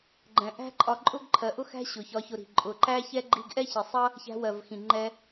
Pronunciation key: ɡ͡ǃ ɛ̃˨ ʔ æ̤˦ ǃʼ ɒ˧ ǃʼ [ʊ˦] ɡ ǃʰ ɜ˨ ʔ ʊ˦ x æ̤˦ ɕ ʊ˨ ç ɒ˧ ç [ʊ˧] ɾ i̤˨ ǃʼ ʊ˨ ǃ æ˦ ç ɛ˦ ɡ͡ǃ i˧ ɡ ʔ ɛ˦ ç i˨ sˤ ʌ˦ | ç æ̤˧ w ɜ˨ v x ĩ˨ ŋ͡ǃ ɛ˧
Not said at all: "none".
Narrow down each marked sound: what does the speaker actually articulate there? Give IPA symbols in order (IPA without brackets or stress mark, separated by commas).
ʊ˦, ʊ˧